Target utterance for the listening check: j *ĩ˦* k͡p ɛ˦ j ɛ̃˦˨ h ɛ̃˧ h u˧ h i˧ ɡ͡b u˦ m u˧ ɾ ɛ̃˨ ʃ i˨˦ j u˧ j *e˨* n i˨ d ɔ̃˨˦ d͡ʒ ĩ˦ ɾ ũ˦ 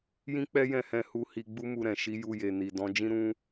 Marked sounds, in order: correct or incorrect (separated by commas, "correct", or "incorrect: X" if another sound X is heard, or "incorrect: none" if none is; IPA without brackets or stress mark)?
correct, correct